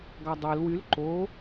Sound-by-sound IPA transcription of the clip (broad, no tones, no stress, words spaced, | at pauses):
ɡɑdˤel wyl ǃo